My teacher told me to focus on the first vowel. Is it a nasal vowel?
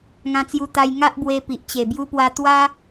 yes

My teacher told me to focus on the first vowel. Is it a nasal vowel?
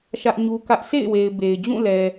no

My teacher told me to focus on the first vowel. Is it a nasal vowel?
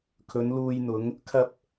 no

